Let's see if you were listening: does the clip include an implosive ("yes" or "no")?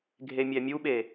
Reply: yes